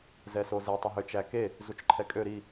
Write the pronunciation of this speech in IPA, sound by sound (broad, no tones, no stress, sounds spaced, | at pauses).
z ɛ s o z e tˤ œ ɦ ø t͡ʃ æ k e | z u t͡ʃ ǃʰ ɛ kʼ ø ɾ i